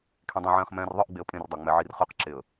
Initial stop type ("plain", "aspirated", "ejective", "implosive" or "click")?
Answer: aspirated